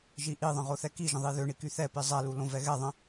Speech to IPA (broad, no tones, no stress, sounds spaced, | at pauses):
ʒ i ʔ i ðˤ ə̃ ʁ o θ ɛ k i ʒ ə̃ ðˤ i ð ø ɳ i k y θ ɛ p i zˤ ɛ l u l õ v ɛ ɣ ɛ ðˤ ə̃